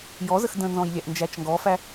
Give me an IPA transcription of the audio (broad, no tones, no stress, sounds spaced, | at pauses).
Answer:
j ɔ z ə x d ə̃ n z ɔ̃ j lʲ æ ʔ n d͡ʒ æ t͡ʃ ŋ ɡ ɔ f æ